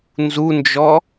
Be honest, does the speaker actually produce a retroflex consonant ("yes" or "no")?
no